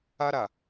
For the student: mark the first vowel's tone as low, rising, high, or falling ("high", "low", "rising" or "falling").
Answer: high